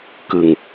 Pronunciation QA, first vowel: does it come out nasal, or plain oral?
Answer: oral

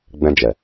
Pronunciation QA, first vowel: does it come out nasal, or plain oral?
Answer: nasal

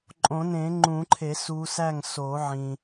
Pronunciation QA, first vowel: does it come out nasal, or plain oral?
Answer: nasal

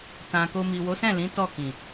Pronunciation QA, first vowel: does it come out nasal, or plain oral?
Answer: nasal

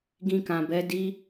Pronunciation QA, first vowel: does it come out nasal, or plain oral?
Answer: nasal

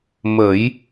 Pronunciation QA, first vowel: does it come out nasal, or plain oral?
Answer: oral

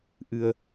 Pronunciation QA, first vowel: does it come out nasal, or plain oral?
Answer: oral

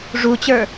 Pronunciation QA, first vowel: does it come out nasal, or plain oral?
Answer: oral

